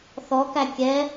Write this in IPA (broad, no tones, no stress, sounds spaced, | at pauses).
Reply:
θ ɔ k æ kʲ ɛ